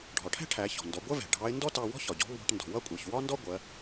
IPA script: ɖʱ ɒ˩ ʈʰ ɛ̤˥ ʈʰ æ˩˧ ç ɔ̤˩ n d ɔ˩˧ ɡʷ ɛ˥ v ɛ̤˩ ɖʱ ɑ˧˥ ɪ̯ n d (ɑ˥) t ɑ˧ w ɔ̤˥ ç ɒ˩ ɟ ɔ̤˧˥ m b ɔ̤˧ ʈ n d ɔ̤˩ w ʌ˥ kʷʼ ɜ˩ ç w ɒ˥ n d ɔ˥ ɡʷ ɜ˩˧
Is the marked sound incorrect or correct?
incorrect